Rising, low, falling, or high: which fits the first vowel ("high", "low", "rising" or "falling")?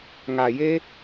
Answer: low